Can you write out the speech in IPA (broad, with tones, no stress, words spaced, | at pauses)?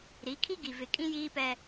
ɾi˨˦kʰi˦ɡi˨ vɪ˨ kʼĩ˦jiː˦pɛ˦